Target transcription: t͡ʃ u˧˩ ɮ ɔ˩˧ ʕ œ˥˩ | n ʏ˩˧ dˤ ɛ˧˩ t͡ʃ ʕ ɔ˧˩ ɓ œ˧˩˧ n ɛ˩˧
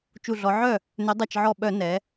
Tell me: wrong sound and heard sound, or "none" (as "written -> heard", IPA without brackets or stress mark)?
none